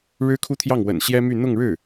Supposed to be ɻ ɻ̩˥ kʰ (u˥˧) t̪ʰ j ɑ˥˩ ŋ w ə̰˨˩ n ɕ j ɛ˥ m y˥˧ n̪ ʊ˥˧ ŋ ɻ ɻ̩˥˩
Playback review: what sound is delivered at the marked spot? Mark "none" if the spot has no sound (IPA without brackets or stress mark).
u˥˧